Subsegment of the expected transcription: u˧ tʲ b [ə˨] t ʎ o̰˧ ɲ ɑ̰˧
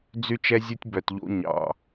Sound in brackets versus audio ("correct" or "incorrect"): incorrect